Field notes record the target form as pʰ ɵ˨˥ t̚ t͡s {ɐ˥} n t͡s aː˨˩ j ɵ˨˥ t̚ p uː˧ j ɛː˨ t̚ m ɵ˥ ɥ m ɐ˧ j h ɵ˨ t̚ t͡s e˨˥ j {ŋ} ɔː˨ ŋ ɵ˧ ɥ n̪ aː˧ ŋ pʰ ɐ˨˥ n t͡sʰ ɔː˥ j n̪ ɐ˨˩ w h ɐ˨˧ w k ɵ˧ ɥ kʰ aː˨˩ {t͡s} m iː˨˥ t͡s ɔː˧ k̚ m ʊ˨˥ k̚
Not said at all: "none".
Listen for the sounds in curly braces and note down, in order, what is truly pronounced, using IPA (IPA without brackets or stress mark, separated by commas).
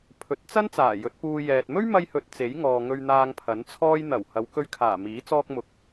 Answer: ɐ˥, ŋ, none